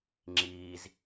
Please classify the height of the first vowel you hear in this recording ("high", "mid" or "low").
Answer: high